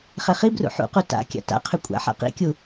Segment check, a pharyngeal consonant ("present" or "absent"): present